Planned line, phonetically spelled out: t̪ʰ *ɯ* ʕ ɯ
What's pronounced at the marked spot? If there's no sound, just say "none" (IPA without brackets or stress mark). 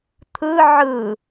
ɯ